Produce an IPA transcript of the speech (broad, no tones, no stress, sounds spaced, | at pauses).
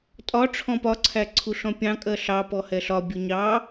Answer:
tʼ ɒ ʈ͡ʂʰ ɔ̃ p ɒ ǀʰ æ ǀʰ u ɬ ɔ̃ pʲ ɑ̃ kʼ ɜ ɬ ɑ p ɔ h ɛ ɬ ɒ bʲ ʊ ɲ ɑ